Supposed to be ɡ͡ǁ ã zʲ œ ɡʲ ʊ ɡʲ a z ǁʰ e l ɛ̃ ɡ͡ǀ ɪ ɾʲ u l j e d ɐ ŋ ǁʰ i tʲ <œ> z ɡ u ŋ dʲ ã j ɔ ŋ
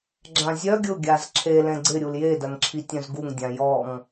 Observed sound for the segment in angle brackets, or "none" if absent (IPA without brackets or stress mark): œ̃